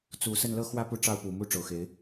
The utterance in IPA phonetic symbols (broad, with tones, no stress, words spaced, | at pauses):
t͡su˨˩ sə˥˨nlɤ˥˨xwä˥˨ pu˥˨ʈ͡ʂɑ˥˨ʊ̯pu˨˩ mu˥˨ʈ͡ʂo˩ʊ̯xe˨˦ɪ̯